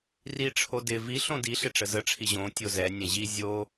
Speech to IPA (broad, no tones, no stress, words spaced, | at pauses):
riʈ͡ʂʰo dɪ vi ɬõdiɬɪ ʈ͡ʂəzəʈ͡ʂʰi ʑõ tʲozɛnʲɛ̃ ʑi zʲo